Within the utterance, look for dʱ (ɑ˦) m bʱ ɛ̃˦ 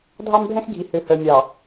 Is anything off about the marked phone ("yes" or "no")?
no